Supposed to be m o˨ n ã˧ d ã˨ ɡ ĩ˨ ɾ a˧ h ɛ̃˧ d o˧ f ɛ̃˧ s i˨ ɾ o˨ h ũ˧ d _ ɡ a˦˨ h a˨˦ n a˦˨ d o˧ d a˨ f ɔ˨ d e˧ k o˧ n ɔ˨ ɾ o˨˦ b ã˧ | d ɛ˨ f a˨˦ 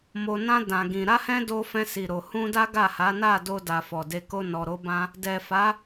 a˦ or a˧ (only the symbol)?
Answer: a˦